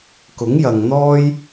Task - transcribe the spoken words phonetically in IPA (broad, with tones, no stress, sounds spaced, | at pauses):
k ʊ˨˥ ŋ j ɐ˨ ŋ n̪ ɔː˥ j